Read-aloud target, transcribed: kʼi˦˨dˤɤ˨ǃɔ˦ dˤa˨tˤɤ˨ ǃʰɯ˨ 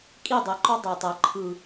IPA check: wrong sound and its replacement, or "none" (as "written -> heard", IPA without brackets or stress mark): none